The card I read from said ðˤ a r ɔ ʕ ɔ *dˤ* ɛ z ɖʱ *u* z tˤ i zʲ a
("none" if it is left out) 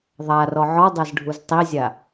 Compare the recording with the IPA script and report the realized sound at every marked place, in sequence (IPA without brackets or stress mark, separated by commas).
dˤ, u